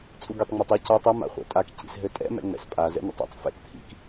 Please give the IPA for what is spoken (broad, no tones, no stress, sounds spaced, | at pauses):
t͡sʼ u ɡ i tˤ ŋ͡m ɛ tˤ ɛ c ɒ tˤ ɘ m a̰ χʷ ɛ̰ tʼ a k c ḭ s ɦ ɘ tʼ ɛ̰ m ɛ̰ ŋ͡m ɛ̰ s pʼ a z ɛ̰ n̪ ḛ tˤ ɛ̰ tˤ f ɛ̰ k t̪ʰ ḭ k